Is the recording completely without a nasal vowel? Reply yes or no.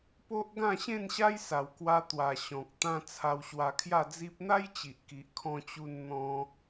no